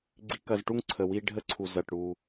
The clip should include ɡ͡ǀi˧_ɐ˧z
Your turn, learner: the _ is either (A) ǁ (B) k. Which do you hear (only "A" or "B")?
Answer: B